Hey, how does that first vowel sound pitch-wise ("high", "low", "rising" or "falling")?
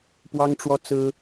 high